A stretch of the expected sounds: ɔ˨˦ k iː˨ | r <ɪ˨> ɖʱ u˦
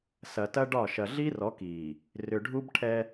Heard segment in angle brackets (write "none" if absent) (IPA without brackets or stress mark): ʏ˨